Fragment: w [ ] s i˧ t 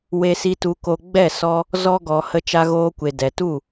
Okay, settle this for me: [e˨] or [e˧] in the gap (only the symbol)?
e˧